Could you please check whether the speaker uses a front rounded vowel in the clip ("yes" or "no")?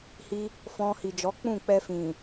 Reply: no